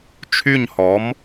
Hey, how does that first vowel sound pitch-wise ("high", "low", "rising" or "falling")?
falling